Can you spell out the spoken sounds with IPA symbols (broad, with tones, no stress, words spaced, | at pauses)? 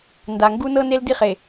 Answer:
nda˨ŋɡu˦ nɤ˦ne˦ldi˦χe˨